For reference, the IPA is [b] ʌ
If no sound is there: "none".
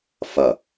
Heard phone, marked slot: f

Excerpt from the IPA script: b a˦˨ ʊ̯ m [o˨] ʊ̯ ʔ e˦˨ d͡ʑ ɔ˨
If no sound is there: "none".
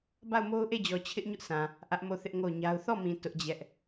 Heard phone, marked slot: o˦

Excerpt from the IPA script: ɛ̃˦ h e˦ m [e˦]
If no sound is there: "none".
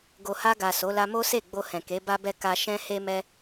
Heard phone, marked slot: ɛ˦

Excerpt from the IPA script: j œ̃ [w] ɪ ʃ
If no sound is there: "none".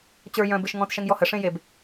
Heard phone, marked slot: b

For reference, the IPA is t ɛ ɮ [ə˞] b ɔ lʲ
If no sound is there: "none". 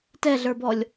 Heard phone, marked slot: ə˞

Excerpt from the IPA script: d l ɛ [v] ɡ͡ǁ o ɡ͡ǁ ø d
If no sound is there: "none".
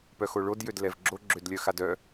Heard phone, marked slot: v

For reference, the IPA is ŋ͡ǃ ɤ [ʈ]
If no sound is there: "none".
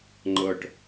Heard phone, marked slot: ʈ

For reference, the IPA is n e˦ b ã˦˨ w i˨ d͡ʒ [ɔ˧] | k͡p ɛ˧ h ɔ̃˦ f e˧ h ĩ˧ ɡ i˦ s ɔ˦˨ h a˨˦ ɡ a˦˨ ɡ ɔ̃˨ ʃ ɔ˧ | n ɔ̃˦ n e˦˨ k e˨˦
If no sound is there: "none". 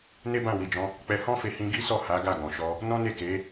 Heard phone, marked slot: ɔ̃˧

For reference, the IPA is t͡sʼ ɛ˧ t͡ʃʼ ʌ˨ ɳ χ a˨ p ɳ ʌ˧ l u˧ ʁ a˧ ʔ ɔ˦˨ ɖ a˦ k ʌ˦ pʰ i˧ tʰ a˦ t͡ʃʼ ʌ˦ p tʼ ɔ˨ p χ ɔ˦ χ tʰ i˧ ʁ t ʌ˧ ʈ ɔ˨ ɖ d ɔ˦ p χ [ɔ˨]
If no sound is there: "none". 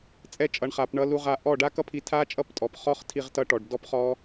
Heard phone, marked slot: ɔ˦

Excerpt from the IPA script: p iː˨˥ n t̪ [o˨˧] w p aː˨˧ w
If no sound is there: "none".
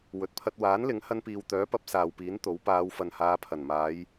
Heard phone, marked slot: o˨˥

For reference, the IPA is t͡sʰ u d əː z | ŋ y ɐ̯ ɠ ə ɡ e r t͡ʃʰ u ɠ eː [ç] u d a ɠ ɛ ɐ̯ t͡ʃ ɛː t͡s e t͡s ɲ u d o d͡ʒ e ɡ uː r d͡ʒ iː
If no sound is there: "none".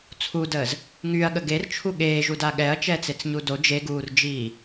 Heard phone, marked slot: ʒ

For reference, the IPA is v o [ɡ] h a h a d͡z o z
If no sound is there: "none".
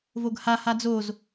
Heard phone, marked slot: ɡ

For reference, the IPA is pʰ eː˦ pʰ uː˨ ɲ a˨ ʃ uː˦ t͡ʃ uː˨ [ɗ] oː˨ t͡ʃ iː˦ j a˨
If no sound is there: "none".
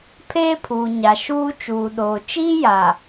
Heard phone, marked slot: ɗ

